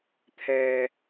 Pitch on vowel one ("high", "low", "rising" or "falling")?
low